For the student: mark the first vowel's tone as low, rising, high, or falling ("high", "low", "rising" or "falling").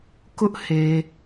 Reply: high